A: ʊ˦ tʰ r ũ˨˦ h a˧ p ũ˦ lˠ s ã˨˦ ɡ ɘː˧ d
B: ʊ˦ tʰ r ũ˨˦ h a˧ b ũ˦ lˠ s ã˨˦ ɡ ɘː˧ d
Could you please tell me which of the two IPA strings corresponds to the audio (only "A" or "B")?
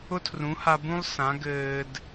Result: B